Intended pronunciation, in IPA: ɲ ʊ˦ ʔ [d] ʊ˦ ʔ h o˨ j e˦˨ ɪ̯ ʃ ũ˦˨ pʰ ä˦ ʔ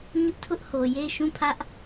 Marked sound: incorrect: tʰ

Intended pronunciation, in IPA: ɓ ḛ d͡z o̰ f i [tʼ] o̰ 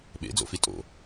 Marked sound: correct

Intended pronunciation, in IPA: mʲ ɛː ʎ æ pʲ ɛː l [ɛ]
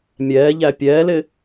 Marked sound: incorrect: ɪ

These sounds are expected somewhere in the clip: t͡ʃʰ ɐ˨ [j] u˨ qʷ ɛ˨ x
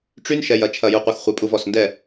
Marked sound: correct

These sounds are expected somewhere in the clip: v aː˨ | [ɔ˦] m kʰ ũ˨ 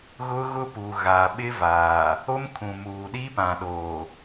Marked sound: incorrect: o˦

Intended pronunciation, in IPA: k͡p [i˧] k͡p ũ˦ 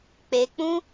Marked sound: incorrect: e˧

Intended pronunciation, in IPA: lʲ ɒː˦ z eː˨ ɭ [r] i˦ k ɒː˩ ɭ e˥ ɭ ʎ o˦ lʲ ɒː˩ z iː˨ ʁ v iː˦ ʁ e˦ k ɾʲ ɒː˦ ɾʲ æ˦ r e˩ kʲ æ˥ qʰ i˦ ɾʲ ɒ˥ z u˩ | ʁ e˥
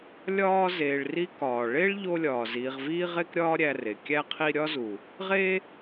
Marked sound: correct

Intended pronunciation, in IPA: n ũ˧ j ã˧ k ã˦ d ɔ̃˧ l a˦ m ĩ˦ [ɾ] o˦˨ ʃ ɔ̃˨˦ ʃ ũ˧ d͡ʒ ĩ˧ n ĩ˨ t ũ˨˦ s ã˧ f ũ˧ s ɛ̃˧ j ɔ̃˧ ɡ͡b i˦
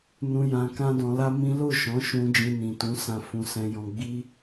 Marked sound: incorrect: l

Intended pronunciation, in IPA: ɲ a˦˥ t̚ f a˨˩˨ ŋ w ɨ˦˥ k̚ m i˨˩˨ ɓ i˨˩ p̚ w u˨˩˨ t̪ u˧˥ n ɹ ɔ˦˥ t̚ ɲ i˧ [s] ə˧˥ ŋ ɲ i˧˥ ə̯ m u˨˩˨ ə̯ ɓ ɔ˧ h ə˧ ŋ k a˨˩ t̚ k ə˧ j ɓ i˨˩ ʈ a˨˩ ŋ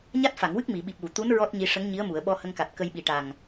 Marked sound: incorrect: ʂ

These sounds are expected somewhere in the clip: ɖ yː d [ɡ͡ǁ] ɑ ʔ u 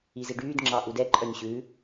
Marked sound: incorrect: ŋ͡ǁ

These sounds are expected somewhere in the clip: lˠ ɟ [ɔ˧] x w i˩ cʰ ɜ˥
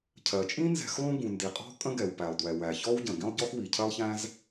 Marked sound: incorrect: ɔ˥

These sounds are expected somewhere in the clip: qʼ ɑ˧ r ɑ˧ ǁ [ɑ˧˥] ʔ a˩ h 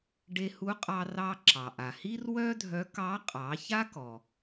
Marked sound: incorrect: ɑ˩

